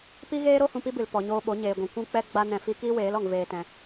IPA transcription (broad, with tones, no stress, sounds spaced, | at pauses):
p i˦ ɣ eː˦ ɾ o˦ h ũ˧ p i˦ b ɨ˨ l p ɔ˨ ɲ oː˧ ɓ o˨˦ ɲ eː˨ ɡʷ ĩ˨ kʷ ũ˦ k͡p ɛ˦ ɡ͡b a˦ n ɛ̃˧ f i˦ k iː˦ w eː˨˦ l ɔ˨ ŋ v eː˧ t ɛ̃˧